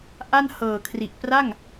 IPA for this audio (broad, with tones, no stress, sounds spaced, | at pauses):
ʔ a˥˩ n h ɤː˨˩ kʰ r i˨˩ ʔ p r a˥˩ ŋ